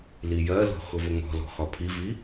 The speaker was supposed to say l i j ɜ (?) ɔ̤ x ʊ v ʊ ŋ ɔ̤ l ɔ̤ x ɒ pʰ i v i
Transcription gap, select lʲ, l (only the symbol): l